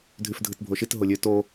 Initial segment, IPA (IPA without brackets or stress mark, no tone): dʱ